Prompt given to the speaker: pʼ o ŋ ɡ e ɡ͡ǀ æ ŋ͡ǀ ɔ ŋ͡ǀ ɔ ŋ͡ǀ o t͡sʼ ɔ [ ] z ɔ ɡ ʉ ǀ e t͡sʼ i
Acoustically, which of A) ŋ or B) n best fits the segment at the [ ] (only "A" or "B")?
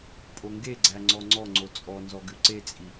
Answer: B